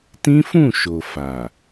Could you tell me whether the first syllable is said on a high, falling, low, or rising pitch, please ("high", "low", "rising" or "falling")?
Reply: high